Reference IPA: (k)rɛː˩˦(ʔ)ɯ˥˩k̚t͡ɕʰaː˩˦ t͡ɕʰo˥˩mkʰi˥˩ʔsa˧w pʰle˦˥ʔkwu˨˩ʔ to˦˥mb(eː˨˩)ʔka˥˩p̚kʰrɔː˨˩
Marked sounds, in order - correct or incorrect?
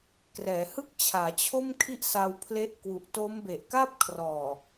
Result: correct, incorrect: h, incorrect: e˨˩

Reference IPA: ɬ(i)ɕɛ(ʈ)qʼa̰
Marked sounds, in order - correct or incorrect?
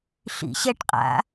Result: incorrect: ḭ, correct

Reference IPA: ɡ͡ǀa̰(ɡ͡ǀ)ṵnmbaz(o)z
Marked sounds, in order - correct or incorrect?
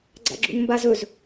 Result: incorrect: ɡ͡ǁ, incorrect: ɵ

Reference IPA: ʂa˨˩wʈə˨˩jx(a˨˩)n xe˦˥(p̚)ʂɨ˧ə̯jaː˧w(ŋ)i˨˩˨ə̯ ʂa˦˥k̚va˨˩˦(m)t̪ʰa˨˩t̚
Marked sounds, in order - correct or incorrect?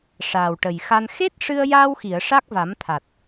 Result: incorrect: a˧, incorrect: t̚, incorrect: x, correct

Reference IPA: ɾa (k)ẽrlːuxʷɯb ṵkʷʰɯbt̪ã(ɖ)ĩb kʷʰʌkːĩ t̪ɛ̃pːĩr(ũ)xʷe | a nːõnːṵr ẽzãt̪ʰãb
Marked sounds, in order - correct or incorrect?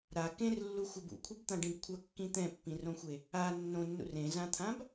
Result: correct, correct, incorrect: õ

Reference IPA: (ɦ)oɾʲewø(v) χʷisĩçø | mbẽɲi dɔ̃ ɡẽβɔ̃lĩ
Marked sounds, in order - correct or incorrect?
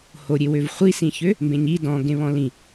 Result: incorrect: h, correct

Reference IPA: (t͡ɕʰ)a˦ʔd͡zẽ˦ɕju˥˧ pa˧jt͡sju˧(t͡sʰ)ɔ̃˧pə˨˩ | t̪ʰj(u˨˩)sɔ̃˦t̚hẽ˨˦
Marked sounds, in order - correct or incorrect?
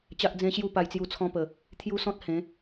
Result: incorrect: t͡ɕ, correct, incorrect: u˦

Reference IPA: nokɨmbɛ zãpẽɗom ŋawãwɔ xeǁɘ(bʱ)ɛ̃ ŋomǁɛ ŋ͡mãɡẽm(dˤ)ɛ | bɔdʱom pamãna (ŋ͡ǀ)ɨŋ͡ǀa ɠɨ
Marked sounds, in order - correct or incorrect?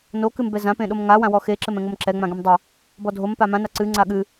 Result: incorrect: m, correct, incorrect: ǀ

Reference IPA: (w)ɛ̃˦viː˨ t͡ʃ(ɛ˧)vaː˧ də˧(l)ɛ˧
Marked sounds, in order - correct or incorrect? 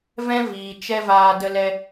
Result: incorrect: v, incorrect: ɛ˦, correct

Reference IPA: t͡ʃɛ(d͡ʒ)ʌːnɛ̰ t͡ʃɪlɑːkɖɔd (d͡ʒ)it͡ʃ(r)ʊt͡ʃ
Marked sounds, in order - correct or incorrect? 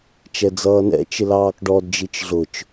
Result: incorrect: d͡z, correct, incorrect: ɮ

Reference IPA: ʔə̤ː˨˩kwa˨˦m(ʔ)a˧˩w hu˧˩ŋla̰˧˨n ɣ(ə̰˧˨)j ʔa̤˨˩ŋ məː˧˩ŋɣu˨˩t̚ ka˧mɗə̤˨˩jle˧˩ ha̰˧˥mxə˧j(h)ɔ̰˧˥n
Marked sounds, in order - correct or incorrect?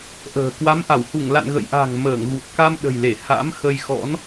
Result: correct, correct, incorrect: x

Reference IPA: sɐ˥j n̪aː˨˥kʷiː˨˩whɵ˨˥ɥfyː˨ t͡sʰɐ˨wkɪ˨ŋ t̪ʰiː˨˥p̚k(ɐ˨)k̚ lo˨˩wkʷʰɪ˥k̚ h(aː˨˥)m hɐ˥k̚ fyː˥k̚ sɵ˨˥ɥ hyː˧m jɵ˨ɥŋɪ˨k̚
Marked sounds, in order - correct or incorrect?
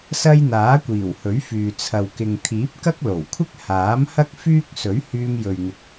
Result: incorrect: ɐ˥, correct

